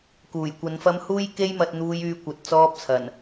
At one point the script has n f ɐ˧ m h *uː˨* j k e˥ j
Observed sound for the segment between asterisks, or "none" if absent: uː˥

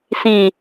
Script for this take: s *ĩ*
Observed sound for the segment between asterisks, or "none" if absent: ĩ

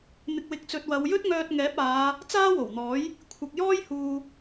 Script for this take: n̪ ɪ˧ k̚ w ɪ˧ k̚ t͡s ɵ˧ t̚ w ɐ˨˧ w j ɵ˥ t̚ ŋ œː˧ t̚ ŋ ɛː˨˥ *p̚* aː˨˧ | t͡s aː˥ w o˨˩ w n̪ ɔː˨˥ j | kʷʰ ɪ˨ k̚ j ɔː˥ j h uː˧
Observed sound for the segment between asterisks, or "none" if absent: p̚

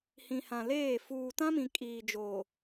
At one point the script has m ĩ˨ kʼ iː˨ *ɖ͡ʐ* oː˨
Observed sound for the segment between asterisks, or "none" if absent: d͡ʒ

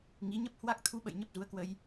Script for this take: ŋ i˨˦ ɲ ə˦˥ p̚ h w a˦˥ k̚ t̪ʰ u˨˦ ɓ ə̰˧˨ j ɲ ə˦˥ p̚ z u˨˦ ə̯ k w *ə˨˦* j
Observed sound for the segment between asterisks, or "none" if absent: ə˧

